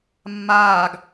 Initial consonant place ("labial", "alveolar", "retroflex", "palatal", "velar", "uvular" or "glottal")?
labial